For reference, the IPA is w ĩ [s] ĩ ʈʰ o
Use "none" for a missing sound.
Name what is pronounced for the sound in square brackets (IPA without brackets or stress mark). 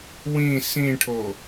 s